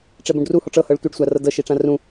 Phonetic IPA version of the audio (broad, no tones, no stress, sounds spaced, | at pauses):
ʈ͡ʂ ɛ b ũ ɖ r u h ɔ ʈ͡ʂ ɤ h ɤ ɭ tʷ ɯ ɖ sʷ a r ɤ d ɤ ʃ i ʈ͡ʂ ã r ũ